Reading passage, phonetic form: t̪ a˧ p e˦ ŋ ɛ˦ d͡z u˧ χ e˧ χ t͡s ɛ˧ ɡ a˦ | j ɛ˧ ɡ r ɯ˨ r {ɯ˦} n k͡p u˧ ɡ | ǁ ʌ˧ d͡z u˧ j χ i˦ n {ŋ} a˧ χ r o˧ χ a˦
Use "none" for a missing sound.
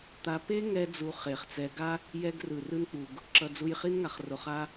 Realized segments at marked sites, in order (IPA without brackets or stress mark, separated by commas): ɯ˦, ŋ